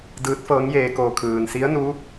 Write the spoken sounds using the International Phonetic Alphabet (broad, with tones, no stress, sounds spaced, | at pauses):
d ɯː˧˥ t̚ f ɤː˧˥ ŋ j eː˧ k oː˧ kʰ ɯː˩ n s i˧˥ ə̯ n u˧˥